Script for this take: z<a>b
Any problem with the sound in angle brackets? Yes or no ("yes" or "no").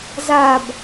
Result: no